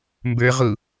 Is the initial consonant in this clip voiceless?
no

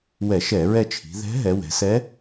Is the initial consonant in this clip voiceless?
no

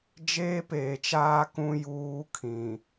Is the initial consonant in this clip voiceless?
no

